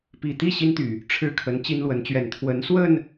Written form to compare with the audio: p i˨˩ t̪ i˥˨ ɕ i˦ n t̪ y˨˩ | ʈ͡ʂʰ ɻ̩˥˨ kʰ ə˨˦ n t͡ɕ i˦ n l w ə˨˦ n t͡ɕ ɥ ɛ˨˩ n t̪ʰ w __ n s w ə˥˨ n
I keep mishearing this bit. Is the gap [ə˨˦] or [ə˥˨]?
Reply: ə˨˦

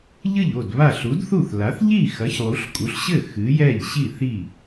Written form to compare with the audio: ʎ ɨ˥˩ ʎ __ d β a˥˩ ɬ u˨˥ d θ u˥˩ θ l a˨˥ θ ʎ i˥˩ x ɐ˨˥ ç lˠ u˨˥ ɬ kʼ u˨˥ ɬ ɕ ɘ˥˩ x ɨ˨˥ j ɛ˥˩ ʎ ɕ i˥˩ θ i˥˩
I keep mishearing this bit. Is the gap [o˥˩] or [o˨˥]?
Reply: o˥˩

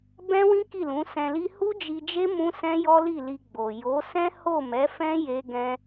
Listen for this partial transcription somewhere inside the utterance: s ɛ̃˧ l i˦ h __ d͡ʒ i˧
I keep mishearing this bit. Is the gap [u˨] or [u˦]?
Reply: u˦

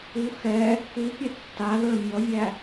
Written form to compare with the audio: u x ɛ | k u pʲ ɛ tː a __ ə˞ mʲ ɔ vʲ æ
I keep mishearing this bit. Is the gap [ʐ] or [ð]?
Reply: ð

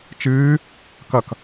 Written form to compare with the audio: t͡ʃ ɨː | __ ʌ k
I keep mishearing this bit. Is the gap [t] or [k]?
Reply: k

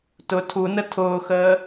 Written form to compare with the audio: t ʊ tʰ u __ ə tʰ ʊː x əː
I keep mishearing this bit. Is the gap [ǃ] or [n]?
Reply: n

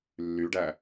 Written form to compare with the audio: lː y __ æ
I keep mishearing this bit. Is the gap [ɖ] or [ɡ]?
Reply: ɖ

